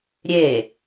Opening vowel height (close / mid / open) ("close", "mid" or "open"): mid